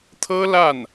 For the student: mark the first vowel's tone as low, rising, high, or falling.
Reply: high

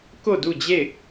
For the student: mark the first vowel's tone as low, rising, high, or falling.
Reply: falling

